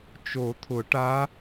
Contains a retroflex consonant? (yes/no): yes